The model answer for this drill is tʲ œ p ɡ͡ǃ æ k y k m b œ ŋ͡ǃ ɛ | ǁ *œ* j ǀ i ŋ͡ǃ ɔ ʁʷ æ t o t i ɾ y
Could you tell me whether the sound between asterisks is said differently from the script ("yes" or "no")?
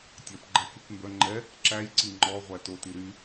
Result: yes